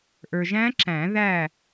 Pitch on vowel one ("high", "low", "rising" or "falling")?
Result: low